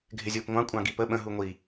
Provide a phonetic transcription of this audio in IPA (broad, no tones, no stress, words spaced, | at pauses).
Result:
ɡʱɪzʲʊːpŋʷɑ̃ kʷʼɑ̃ɡipə ɓə̃ ɦuŋʷi